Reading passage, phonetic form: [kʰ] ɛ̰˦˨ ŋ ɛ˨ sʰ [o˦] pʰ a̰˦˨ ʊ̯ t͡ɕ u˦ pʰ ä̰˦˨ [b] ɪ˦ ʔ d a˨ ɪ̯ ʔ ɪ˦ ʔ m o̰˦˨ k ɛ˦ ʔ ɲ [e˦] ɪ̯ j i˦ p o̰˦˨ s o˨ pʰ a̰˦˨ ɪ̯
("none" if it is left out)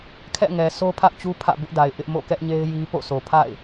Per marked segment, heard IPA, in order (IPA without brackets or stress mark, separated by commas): kʰ, o˦, b, e˦